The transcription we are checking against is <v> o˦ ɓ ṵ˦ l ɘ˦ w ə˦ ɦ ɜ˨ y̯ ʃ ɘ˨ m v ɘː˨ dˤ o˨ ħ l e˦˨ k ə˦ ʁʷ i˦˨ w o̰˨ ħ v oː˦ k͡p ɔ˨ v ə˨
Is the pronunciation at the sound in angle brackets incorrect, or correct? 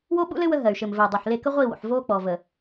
incorrect